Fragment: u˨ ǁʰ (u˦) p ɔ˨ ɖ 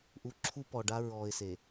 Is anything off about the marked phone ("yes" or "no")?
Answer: no